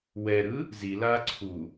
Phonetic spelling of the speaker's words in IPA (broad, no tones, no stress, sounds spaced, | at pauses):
w ɛ ɾ ɯ | z i l aː ǀʰ u